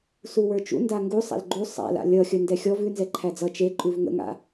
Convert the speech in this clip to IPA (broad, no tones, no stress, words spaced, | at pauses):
suwə˞t͡ʃṵ ndaŋɡusˤa̰l ɡ͡ǃu sˤa̰la̰ lʲʌxʲə ndɛxʲɔv ʉnzɛ ǃʰæd͡zʌ t͡ʃeǃʼʉv ŋə̰ŋa̰